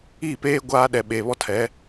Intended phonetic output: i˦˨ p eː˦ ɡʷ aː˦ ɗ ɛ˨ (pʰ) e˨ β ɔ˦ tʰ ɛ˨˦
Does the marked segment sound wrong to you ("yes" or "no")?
yes